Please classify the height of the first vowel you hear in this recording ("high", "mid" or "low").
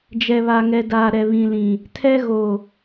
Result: mid